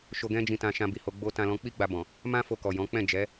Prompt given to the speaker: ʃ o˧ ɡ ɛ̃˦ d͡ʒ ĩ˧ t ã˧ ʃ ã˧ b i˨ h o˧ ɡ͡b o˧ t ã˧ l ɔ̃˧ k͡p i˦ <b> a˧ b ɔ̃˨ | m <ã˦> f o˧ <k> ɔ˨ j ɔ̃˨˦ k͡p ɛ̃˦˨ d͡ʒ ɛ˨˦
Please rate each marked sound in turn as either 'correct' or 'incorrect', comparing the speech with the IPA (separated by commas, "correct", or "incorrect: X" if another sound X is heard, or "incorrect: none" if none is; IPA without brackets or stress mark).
incorrect: ɡ͡b, correct, correct